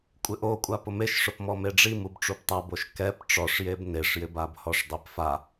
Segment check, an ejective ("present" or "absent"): present